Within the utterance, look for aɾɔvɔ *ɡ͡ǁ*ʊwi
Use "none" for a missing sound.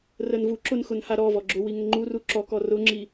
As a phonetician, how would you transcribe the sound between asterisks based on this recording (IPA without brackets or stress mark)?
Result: ɡ͡ǁ